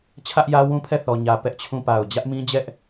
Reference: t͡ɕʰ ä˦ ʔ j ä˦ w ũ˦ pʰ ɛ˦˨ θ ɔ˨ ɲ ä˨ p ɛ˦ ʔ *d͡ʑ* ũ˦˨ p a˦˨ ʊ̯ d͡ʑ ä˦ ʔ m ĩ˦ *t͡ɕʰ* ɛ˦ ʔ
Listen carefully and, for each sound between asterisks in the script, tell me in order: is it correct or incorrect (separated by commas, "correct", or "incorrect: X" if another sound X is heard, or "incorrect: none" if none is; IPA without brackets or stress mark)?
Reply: incorrect: t͡ɕʰ, incorrect: d͡ʑ